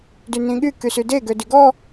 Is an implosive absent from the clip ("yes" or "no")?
no